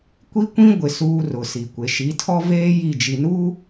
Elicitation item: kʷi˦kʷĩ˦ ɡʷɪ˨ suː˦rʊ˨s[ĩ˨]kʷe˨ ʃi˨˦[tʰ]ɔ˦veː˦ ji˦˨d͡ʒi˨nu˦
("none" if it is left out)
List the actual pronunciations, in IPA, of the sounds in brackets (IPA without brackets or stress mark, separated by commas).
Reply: i˨, tʰ